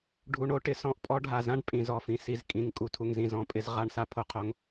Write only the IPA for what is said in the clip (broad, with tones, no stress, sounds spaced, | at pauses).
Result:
ɖʱ u˨ ɳ o˧ ʈ ɪ˨ s ɔ̃˧ ʔ pʼ ɔ˦ ɖʱ a˨ z ã˦ ɖ pʼ ĩ˨ z ɔ˨ f ĩ˨ s i˨ z kʼ ĩ˨ ŋ kʼ u˨ tʰ u˨ ŋ z ĩ˨ z ɔ̃˨˦ pʼ ɪ˧ z ʁ a˧ ɳ s a˧ pʰ o˦ qʰ o˧ ŋ